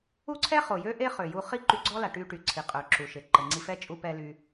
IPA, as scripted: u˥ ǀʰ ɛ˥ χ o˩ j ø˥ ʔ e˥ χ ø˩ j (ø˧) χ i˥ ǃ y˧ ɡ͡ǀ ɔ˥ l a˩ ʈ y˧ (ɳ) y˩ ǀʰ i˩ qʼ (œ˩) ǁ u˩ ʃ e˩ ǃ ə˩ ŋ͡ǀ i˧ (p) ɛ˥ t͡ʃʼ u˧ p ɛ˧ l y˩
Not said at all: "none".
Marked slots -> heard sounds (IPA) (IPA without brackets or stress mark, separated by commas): u˧, ʈ, œ˩, f